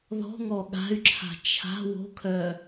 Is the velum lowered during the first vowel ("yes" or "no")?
no